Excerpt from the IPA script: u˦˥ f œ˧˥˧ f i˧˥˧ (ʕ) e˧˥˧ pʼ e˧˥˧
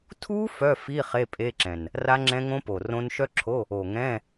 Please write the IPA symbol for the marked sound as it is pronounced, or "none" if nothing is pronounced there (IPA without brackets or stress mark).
χ